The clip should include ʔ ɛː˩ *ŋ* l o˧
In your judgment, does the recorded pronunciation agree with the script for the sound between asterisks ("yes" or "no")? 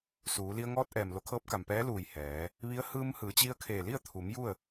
no